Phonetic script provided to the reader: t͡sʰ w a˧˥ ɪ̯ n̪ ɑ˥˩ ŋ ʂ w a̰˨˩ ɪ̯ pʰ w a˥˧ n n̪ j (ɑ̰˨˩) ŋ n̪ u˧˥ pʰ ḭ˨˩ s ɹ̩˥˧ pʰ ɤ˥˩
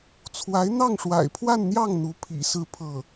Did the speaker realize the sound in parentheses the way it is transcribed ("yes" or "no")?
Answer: no